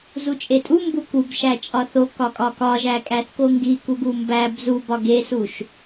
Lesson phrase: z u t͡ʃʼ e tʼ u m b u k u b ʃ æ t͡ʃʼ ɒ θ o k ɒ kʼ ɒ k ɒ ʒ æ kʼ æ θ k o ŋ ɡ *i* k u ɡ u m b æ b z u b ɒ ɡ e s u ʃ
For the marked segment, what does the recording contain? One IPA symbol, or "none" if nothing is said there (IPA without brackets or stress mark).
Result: i